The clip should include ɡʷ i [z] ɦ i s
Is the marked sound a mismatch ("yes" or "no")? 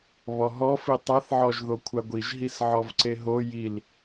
yes